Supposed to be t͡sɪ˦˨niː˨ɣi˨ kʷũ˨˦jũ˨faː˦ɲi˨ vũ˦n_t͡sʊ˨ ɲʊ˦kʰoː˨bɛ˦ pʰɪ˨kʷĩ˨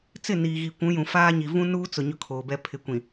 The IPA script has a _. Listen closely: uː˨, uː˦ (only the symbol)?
uː˦